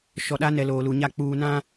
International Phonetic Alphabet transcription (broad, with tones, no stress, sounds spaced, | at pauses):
ʃ ɔ˨ ɗ a˦ n ɛ˨ l oː˨ l u˨ ɲ a˦˨ k͡p uː˨ n ã˦